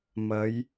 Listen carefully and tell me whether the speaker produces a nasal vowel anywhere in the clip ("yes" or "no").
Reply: no